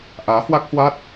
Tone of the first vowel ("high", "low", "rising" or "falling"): rising